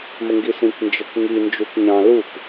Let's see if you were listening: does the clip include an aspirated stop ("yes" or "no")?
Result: no